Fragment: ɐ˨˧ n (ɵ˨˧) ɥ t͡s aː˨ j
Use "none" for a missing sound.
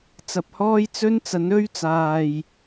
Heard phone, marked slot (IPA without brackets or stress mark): ɵ˧